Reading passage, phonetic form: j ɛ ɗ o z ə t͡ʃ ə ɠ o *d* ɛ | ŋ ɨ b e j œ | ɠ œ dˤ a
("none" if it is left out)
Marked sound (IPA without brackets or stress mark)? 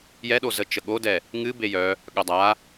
d